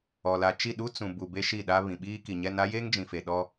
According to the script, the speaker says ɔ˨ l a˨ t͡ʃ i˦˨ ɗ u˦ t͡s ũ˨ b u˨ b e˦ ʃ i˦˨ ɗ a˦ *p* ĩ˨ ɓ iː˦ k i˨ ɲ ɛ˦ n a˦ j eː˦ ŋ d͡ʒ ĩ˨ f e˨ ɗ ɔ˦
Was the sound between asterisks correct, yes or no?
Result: no